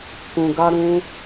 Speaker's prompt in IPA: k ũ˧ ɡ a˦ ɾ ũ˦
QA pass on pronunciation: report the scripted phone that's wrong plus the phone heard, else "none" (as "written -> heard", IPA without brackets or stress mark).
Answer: none